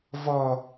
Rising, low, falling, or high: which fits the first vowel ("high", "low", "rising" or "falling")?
high